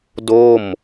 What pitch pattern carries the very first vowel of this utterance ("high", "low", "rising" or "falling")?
falling